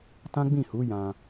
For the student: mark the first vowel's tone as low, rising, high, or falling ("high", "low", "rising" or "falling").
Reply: high